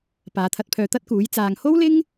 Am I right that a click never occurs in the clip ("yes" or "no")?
yes